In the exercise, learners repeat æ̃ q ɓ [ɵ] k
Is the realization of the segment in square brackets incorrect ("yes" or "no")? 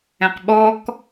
yes